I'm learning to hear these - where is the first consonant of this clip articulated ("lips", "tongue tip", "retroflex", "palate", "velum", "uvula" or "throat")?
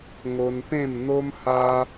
velum